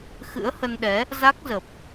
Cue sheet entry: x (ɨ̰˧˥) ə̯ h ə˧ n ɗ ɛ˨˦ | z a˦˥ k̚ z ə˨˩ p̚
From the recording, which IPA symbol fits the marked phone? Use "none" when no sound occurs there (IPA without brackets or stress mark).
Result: ɨ̰˧˥